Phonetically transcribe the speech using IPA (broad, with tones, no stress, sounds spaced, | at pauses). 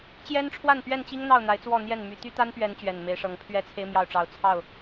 t͡ɕ j ɛ˦ n ʈ͡ʂʰ w a˥˨ n p ɥ ɛ˥˨ n t͡ɕ i˦ ŋ n̪ ɑ˥˨ ʊ̯ n̪ a˨˦ ɪ̯ t͡s w ɔ˥˨ n̪ j ɛ˥˨ n m y˨˩ t̪ y˦ t̪ a˦ n p ɥ ɛ˨˦ n t͡ɕ ɥ ɛ˨˩ n m e˨˦ ɪ̯ ʂ ɤ˨˦ ŋ pʰ ɥ ɛ˦ t͡sʰ e˦ ɪ̯ m j ɑ˥˨ ʊ̯ ʈ͡ʂ ɑ˨˦ ʊ̯ t͡sʰ ɑ˥˨ ʊ̯